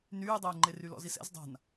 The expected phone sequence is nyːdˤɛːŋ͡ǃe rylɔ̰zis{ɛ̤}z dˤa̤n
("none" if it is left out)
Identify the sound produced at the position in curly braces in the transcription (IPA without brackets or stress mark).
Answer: ɛ̰